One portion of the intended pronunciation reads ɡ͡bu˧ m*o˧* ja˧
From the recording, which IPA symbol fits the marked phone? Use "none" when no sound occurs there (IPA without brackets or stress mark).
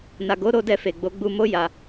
o˦